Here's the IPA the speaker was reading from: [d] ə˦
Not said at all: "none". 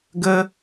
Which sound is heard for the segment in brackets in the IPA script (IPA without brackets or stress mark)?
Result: ɡ